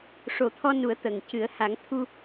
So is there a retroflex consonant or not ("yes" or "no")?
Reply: yes